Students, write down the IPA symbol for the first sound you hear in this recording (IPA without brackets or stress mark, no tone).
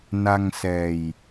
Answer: n